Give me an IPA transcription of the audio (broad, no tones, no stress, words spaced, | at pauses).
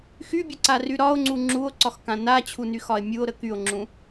xybʲəǀary ɾɒo̯ŋ͡ǀu ŋ͡ǁuo̯ǀɒxkã nat͡ɕʰunyxɒe̯ mʲuo̯ɾə kyo̯ŋ͡ǁũ